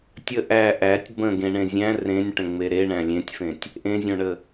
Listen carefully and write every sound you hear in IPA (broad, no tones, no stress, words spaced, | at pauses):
tʲə ʔæ ʔætʲ bə̃ɡẽɳẽ zʲæ̃ rẽnʲʈə̃ŋ͡me ɾeɳæ̃ lʲẽtʲfẽtʲ | ʔẽzʲõɳə